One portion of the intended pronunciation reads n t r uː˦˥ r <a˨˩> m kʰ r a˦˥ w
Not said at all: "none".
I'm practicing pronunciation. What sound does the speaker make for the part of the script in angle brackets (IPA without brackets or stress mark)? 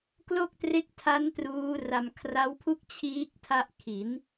a˧